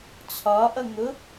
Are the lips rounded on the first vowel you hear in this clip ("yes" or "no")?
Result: yes